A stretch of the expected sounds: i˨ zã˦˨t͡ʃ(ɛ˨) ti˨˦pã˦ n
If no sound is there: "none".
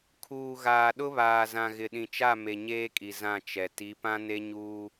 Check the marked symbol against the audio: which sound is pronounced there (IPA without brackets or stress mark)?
ɛ˨